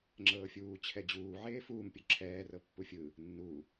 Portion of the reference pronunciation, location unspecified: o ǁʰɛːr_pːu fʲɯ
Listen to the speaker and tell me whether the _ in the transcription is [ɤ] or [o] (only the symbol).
ɤ